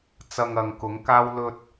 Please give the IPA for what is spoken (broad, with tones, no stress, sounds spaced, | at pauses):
t͡s ɐ˧ ŋ ɐ˨ ŋ k ʊ˨˥ ŋ k aː˥ w l ɵ˧ t̚